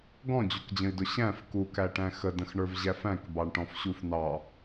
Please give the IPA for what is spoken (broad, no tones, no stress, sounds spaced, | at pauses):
ɡ ɔ̃ d͡ʑ u k d͡ʑ ə̃ i̯ d ʊ ɕ æ̃ f k u k æ ʈ æ̃ x ə d ə̃ x ɳ ə˞ v ʑ æ f æ̃ k b ɑ ɳ ʈ ɔ̃ f ɕ u f n ɑ